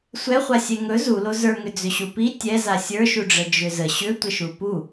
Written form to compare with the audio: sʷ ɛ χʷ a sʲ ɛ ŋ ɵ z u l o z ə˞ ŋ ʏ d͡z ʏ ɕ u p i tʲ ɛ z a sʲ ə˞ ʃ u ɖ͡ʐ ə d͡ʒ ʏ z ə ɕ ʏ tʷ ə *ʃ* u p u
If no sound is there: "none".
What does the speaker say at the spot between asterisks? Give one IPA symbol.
ʃ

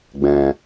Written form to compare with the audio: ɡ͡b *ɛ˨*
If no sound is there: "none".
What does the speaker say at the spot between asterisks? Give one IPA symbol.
ɛ̃˨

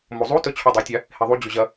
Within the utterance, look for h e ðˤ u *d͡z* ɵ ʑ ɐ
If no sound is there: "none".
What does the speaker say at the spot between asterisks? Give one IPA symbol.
d͡ʑ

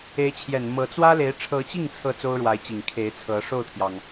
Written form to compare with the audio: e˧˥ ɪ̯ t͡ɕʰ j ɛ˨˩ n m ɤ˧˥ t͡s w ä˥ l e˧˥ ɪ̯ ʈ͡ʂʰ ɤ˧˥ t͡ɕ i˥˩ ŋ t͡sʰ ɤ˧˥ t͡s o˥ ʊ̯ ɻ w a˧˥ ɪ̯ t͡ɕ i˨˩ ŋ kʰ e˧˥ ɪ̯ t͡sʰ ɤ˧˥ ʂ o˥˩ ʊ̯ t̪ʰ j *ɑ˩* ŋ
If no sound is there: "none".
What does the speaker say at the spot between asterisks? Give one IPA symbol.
ɑ˩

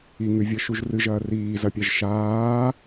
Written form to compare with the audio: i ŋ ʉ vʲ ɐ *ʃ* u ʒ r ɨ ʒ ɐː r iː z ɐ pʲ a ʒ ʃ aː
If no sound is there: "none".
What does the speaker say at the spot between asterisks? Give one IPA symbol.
ʃ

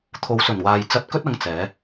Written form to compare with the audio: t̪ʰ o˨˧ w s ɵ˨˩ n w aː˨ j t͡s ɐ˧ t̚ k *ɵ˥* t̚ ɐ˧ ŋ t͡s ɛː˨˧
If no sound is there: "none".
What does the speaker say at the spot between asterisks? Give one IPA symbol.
ɵ˥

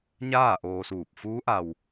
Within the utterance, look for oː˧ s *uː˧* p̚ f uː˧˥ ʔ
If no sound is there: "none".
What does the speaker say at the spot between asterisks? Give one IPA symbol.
uː˧˩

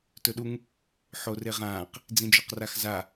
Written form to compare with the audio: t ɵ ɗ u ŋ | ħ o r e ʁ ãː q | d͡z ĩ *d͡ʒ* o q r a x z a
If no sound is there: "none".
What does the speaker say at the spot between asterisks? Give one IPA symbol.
d͡ʒ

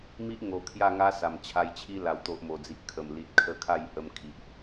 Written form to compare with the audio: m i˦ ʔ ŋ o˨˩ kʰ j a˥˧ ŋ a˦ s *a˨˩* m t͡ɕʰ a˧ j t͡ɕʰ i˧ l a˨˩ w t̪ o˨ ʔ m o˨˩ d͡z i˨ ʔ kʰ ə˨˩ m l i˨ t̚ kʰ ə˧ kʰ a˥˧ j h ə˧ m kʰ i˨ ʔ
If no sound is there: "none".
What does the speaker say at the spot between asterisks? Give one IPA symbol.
a˨˩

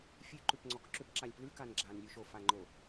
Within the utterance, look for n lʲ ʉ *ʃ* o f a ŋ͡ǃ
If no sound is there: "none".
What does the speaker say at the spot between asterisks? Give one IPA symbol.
ʃ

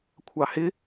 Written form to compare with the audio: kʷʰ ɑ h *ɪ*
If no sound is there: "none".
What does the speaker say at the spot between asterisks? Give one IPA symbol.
ɪ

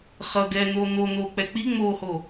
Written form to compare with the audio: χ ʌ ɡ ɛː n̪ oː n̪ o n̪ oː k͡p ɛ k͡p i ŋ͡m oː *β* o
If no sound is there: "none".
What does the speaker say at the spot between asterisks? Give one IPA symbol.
h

